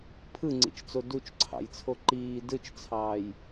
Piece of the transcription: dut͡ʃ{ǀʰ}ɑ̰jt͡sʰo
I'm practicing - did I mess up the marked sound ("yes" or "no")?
no